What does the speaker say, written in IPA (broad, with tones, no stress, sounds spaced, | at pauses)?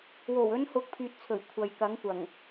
w o˨˩ w ɵ˨˧ n h ʊ˨˥ k̚ pʰ yː˨ t̚ t͡sʰ ɵ˨˩ ɥ kʷʰ ɐ˨ j k ɐ˨˥ ŋ kʷ ɐ˨˩ ŋ